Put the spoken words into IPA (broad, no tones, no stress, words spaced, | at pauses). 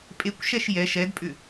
pʼekʷʃɛʃ jɛ ʃɛdpʼʏ